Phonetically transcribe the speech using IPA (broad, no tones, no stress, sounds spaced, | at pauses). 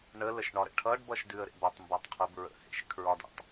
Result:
ɳ ə l ə ʃ ɳ ɒ ɾ ə̰ ʈʰ ʌ ɖ b ʌ ʃ d ʉ ə̯ ɾ ḛ b ʌ tˤ m b a tˤ qʰ ʉ b ɹ ə̰ h ḛ ʃ kʰ ɹ ɒ d a̰ tˤ